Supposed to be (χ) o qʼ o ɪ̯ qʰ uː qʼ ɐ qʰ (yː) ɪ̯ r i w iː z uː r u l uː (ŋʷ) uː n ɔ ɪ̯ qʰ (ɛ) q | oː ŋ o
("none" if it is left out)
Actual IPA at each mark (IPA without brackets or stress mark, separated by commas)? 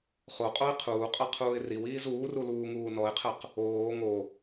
χ, uː, ŋ, ɛ